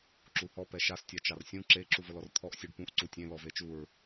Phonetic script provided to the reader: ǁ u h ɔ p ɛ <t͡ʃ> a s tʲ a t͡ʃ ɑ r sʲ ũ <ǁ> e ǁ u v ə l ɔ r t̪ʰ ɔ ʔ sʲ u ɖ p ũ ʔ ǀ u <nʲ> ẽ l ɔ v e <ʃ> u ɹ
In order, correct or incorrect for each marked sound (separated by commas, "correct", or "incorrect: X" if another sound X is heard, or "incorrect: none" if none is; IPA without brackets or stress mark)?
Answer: incorrect: ʃ, correct, incorrect: tʲ, incorrect: t͡ʃ